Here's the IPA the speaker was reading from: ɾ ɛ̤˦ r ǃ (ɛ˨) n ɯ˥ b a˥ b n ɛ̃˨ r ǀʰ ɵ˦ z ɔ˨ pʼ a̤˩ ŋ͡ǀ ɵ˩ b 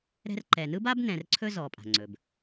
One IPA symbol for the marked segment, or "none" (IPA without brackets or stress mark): ɛ˨